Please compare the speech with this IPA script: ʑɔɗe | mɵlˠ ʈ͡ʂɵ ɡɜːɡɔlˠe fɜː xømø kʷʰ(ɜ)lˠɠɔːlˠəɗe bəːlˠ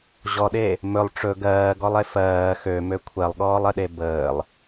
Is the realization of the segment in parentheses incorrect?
no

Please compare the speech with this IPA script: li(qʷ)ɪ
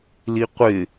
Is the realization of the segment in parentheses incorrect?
no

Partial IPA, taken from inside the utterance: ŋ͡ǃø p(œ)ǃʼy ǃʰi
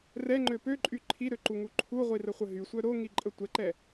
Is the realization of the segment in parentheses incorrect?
yes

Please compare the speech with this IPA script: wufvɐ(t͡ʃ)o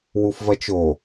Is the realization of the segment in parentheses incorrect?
no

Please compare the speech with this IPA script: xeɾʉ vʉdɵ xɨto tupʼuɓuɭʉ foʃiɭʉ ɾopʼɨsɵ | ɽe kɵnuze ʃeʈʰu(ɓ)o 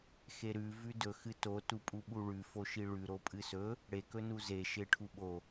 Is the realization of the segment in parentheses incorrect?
no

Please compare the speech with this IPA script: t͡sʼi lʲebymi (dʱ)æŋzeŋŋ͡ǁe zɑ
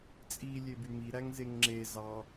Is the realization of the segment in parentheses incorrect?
yes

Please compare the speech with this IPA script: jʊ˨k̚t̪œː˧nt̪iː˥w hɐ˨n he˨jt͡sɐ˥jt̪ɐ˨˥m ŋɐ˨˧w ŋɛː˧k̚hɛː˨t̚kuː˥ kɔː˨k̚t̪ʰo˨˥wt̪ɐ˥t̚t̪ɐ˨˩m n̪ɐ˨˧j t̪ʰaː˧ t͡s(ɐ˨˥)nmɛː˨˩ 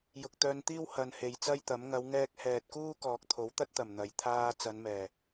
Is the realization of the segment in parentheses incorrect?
yes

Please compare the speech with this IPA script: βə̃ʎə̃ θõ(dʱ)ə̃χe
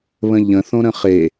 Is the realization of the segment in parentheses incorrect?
yes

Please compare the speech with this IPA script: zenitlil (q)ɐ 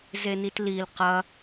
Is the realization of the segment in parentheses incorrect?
no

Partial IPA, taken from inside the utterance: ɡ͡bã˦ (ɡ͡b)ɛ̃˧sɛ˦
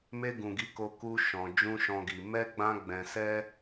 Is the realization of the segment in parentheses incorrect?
no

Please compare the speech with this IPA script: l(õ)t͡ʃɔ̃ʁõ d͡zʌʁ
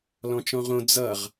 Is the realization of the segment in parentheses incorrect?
yes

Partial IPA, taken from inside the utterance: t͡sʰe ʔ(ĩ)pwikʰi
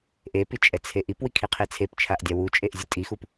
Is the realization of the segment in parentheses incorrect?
yes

